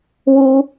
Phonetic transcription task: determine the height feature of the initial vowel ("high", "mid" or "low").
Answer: high